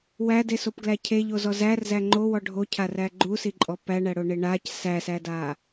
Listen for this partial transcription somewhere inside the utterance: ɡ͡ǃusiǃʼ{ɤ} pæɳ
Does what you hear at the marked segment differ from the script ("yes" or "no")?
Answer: yes